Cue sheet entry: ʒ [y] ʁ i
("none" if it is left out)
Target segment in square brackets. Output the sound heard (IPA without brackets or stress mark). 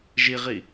i